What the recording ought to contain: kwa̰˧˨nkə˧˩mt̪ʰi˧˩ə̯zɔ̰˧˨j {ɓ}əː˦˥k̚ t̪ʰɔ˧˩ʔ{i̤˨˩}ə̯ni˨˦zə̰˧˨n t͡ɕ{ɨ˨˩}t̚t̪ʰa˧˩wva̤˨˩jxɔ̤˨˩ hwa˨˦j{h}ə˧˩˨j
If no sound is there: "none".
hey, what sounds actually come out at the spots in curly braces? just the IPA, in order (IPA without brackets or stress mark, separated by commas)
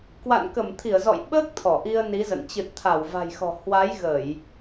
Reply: ɓ, i˧, ɨ˨˩, ɣ